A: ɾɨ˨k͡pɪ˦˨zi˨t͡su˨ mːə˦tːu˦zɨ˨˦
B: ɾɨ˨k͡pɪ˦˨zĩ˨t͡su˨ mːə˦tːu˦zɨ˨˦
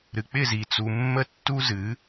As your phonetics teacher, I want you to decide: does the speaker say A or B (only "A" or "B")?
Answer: A